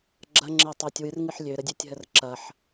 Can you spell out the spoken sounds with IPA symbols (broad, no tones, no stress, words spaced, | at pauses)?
ɡ͡ǁɐŋ͡ǁɪː tˤɪːtʲwɨrŋɨħ lʲøɾədʲøtʲɦər ǁɐħ